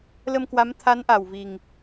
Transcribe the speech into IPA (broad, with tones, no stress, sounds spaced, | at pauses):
l ə˧ m k w a˨˦ m t̪ʰ a˨˦ n ʔ a˨˩ w v i˨˩ ŋ